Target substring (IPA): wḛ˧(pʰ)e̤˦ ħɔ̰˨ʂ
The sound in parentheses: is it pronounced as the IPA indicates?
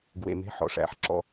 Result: no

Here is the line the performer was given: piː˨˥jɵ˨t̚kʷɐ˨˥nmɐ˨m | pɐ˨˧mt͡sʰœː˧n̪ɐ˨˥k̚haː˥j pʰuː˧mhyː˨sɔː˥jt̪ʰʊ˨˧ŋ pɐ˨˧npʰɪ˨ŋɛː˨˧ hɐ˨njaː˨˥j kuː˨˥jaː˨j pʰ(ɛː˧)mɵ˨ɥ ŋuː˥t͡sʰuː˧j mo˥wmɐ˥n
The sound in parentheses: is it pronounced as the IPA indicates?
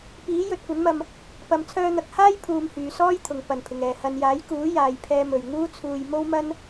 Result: yes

